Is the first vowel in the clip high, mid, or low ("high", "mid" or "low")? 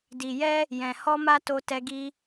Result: high